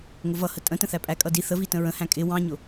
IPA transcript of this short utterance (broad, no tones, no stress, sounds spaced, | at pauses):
ŋ ʊ v ʌ h ə tʼ ə̃ t ə̃ θ æ pʼ æ kʼ ʌ d i θ ə v i t ə̃ ɹ ə̃ h æ̃ kʼ ɪ w ɑ̃ ɲ ʊ